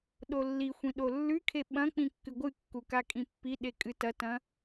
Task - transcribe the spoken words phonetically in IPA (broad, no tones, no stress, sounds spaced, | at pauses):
ɗ o lː i xʷ ĩ ɗ o lː ʉ kʰ e ɓ ɐ̃ k͡p ĩ kː ɨ ɡʷ ɨ kː u k a kʼ ĩ pː i ɗ e kʼ ɨ t ɐ t ɐ̃